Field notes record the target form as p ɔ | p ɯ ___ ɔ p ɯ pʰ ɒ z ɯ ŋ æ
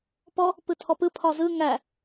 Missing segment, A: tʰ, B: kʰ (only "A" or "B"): A